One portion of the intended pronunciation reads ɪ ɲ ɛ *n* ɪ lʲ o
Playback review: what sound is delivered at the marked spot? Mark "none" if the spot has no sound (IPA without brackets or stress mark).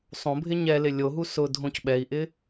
l